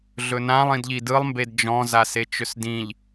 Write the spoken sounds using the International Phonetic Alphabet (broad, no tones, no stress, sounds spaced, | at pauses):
ɮ ɵ n ã lˠ ĩ d ʎ i d ɯ lˠ m b e d d͡ʒ ɔ̃ z a s e t͡ʃ ɵ s d ĩ ʎ